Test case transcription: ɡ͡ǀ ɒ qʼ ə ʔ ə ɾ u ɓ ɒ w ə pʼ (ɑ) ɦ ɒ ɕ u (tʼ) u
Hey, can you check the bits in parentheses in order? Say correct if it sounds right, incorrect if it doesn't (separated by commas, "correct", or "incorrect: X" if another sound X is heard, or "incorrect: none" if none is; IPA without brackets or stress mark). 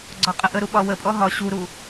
incorrect: ɔ, incorrect: ɾ